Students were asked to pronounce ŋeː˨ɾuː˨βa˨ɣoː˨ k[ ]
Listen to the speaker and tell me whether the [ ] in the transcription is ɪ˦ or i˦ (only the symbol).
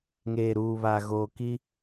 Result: i˦